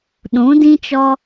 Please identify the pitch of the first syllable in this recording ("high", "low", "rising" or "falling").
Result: rising